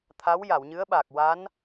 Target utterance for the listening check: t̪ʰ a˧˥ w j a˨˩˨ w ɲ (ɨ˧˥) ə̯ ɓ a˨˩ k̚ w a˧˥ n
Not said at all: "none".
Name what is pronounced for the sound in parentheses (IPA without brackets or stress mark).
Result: ɨ˧˥